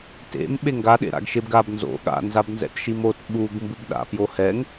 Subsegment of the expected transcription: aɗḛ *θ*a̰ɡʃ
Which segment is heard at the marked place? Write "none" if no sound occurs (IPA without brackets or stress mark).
ɾ